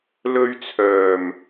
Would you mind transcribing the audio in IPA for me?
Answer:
l ɵ˧ ɥ t͡sʰ œː˨˩ m

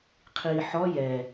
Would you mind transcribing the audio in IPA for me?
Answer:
qʰ iː ħ ɔ j ɛ

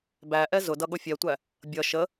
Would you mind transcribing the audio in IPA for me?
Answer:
b æ ʔ ɛ z ʊ d ʌ ɠ ʊ fʲ ɛ tʷ æ | bʲ ʌ ʃ ə

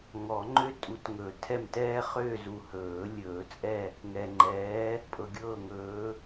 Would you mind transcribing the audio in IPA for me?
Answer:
ŋ ɔ˨˩˦ ŋ͡ǃ ø˦ tʼ u˨˦ t ŋ ɵ˨˩˦ tʰ ɛ˦˨ m t ɛː˦ χ øː˦˨ z u˨ h ɵː˨˩˦ lʲ ɵː˨˩˦ t͡sʼ ɛ˦˨ | ŋ ɛ˨ ŋ͡ǃ ɛː˨˦ | pʼ ɤ˨ ɡʲ ɤː˦˨ ŋ ɵː˨˦

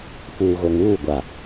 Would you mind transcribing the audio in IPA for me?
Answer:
f uː˨ ɣ o˨ ŋ uː˦˨ ɡʷ a˨

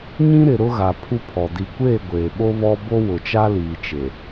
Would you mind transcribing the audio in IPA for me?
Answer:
ɲ ĩ˦ ɾ ɪ˨ ɾ ʊ˦ ɣ a˨ pʰ u˦ pʰ ɔ˨ d i˨ kʷ eː˦˨ ɡʷ eː˨ ɓ o˦ β ɔ˦ b o˦ w ʊ˨ t͡ʃ a˦ l iː˨ t͡ʃ e˨

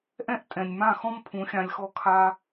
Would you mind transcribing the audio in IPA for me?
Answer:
ʔ ɛ̃˦ ʔ tʼ ɛ̃˨ nʲ m ã˦˨ x ɔ̃˦ m pʰ ũ˨˦ xʲ ã˧ lʲ x ɔ˦ kʰ a˦

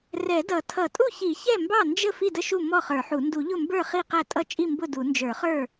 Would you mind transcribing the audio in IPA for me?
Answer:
r ɛ˨˩˦ d ʌ˨˩˦ tʰ ʌ˨˩˦ tʼ u˥˩ ç i˨˩˦ ç ɛ˥˩ m b ɑ˥˩ n d͡ʒ ə˥˩ f i˥˩ d ə˥˩ ʃ u˥˩ m ɔ˥˩ χ ə˞˨˩˦ ħ u˨˩˦ n d u˨˩˦ ʎ ʊ˥˩ m b ə˞˥˩ χ i˥˩ q æ˥˩ tʼ ʌ˥˩ t͡ʃʼ i˥˩ m b ʊ˥˩ d u˨˩˦ n d͡ʒ ə˞˨˩˦ χ ə˞˥˩

